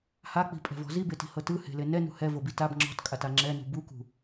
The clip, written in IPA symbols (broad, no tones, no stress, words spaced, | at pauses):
hak͡pi̤pʼɛ̤vɔ̤ zibeti̤hɤ tɯhe̤le nɛnṳ hɛvobi tab ŋ͡ǁɔ̤tkʼata ŋ͡ǁɛnṳ bukṳ